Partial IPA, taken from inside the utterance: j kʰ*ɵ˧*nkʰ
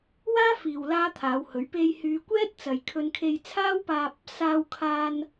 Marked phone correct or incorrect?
correct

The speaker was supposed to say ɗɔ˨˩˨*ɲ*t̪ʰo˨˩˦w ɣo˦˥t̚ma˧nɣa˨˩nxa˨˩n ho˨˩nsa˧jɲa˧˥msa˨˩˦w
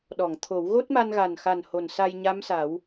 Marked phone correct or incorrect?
incorrect: ŋ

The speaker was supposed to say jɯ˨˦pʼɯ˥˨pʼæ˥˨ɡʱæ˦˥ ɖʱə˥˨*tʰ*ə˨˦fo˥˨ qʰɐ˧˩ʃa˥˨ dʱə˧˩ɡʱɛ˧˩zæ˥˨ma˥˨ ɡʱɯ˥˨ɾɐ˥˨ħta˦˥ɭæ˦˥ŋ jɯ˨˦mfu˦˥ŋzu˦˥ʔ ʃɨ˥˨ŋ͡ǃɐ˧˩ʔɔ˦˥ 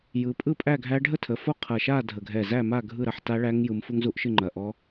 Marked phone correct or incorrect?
correct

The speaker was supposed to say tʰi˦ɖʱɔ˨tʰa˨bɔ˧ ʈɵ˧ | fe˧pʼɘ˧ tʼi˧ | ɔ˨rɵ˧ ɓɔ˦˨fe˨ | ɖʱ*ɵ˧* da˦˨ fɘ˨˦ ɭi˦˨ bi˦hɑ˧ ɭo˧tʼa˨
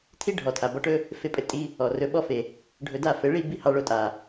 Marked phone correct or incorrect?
correct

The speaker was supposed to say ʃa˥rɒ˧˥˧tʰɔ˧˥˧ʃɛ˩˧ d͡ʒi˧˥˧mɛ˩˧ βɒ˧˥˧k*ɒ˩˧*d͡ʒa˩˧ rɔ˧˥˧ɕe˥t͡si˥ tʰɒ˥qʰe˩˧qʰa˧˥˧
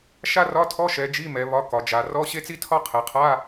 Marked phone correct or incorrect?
correct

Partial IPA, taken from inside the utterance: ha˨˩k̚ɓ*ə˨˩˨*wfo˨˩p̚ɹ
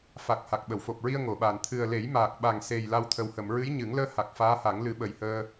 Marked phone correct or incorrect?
correct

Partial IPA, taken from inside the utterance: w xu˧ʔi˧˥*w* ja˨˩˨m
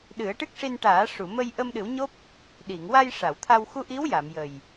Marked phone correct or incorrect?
correct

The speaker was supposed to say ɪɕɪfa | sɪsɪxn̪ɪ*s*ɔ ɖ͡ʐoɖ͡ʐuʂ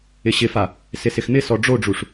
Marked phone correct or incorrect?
correct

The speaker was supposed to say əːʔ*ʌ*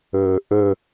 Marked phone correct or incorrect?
incorrect: ə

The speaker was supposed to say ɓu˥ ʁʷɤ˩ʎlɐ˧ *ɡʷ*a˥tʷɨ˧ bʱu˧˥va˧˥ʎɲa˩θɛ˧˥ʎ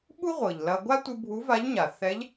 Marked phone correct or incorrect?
correct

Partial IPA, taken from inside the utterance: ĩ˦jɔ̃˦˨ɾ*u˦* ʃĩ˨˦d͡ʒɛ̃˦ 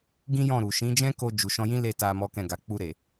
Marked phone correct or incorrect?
incorrect: u˨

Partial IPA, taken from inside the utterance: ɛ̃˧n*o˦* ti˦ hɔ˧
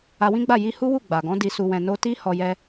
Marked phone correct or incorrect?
correct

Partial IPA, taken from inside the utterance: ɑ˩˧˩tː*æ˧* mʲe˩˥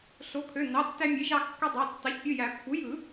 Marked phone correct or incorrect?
correct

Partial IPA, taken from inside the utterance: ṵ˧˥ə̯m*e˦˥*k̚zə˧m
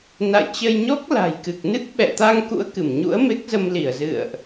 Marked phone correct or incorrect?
correct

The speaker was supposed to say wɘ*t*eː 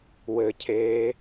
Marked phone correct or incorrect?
incorrect: cʰ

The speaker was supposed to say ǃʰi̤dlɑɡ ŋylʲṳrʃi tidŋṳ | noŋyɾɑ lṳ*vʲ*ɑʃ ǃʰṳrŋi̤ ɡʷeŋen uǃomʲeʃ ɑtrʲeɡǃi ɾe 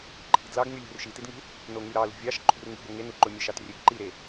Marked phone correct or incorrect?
correct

